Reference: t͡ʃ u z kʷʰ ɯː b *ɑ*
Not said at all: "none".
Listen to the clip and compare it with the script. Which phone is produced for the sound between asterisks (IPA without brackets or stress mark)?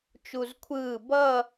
ʌ